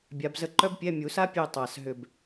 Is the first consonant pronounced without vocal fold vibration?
no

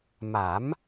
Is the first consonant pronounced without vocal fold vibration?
no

